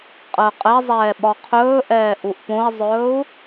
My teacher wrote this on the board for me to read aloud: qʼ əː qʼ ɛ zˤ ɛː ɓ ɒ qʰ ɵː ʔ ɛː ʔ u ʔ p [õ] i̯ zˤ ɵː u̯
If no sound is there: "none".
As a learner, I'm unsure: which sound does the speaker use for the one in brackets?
õ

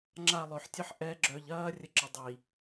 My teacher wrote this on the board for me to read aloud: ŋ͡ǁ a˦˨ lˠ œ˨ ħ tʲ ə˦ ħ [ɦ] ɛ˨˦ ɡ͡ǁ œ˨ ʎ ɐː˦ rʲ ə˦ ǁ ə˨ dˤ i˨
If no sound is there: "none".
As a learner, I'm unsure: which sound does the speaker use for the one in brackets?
ʔ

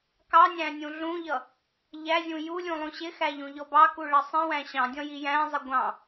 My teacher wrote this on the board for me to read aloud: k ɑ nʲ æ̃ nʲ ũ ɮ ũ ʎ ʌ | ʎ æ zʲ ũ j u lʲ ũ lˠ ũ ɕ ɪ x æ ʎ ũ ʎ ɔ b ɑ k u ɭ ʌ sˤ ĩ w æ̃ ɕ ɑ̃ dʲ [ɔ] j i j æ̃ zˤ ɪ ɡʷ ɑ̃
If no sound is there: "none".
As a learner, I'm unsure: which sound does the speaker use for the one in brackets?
ɔ̃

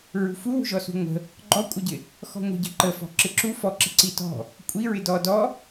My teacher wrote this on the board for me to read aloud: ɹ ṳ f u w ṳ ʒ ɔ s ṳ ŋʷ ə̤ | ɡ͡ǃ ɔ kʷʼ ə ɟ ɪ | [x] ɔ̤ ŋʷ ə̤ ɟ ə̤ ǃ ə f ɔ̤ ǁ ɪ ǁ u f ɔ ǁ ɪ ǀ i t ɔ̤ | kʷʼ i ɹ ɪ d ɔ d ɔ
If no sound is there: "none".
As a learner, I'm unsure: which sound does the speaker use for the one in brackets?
x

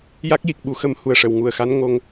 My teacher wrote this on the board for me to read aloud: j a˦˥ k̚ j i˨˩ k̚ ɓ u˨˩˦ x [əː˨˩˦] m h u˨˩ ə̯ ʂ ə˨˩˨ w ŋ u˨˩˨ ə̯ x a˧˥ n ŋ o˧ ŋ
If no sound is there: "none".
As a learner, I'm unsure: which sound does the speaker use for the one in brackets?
ə˨˩˦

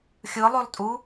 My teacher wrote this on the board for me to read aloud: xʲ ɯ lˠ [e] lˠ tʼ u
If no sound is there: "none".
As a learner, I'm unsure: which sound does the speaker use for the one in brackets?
ø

